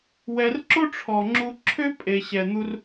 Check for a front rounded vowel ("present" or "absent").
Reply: present